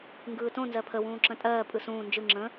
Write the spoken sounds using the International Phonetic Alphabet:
ŋɡɯːtõ nzɜpʰəwũː ǁə̃tʼɜː pʼɯsũː nd͡ʒɯ ŋ͡ǁə̃

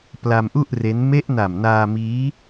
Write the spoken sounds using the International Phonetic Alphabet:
pla˧mʔu˥˩ʔ re˦˥n me˦˥ʔ na˨˩mnaː˧miː˦˥

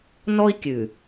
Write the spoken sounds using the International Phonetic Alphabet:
nɔ˦i̯kʲʉ˨

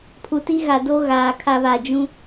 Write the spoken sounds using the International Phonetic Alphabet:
pʰu˨ti˦ɣa˨do˦ ɣaː˨kʰa˦βa˨ d͡ʒũ˦

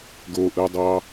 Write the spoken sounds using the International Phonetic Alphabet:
ɡoʔɯdˤɑ

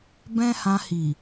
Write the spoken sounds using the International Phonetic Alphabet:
bɛ̃˦hã˧hi˨

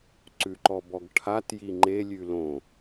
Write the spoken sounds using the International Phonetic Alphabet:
ǀʉǃɔbɔɡʈʰat jiŋ͡ǃe lʲʉlõ

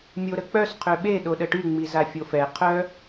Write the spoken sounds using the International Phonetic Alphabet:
mʲoɾək͡pœs qʰøɓe ɗoɗəʈy ŋ͡mizafʲofɛ qʰœ

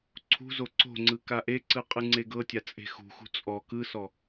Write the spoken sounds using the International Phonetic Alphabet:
ǀʰṳzo ǀo̤ŋ͡ǀɯ kaʔeǀɯ qʼɯŋ͡ǀeɡɤtʲa t͡sʼe̤xṳxṳ t͡sʼɔ kɯsɔ

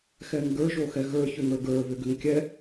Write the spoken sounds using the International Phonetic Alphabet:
xɛŋɡə˞ ʒoxɛɣə˞ çʏŋə˞ɡə˞ βʏɡʏŋkʲɛ

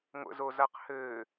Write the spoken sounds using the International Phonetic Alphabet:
ŋʷə̰zozaq hɘː

